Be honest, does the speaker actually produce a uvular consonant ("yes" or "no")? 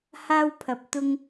no